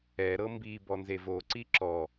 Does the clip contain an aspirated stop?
no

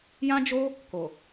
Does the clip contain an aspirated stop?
no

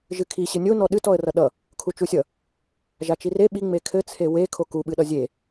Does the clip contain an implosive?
yes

